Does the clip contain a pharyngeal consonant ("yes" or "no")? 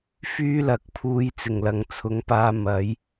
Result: no